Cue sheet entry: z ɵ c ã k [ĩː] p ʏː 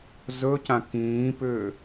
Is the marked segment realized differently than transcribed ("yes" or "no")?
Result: no